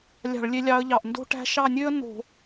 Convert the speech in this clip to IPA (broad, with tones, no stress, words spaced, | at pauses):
lʲɑ̤˧˩˧ɭlʲe˨˦lʲɑ˨˦ə̯ʎɑ˩˧˩ʔ ndo̤˥ʈæ̤˥ ʃɑ˦˨nʲø˥ə̯ no̤˧˩˧